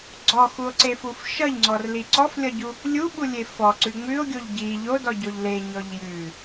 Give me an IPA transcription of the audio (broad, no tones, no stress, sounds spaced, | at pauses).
ɡ͡ǀ ɔ x u o̯ ǀ e f u f ʃ ʌ ʎ ŋ͡ǀ ɔ r l i ǀ ɔ f lʲ ʌ ɟ u | lʲ u ɓ u lʲ e f ɔ ǀ ʉ ŋ͡m ʉ o̯ ɡʲ o ʎ ɟ i ʎ o d ɔ ɟ o ʎ l e ɲ ɔ ʎ j ʉ